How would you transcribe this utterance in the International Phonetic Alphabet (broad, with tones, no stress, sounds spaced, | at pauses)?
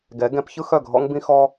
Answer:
ɡ ɛ˨˥ ɡ ɛ̃˨˥ p ç ɯ˦ x œ˥˩ ɡʱ ɔ̰˦ ŋ b ĩ˦ x ɔ˦